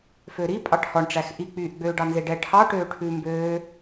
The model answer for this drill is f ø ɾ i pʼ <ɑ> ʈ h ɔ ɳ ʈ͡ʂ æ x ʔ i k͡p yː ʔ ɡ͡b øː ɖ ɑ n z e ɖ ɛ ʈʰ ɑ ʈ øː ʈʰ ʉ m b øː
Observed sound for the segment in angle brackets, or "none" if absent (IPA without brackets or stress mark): ɑ